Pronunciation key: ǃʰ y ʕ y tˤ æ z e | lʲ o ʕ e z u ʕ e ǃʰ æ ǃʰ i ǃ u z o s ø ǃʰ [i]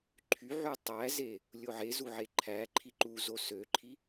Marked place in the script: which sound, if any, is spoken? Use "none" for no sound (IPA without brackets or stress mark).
i